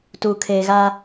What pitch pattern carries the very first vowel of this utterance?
low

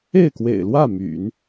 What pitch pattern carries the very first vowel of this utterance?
falling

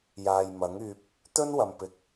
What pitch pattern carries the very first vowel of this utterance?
low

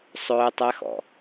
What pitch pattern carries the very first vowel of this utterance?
high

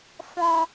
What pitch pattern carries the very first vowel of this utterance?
high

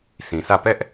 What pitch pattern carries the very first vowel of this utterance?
low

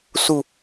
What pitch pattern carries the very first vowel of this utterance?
falling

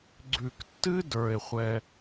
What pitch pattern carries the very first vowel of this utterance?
low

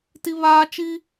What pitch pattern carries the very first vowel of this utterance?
high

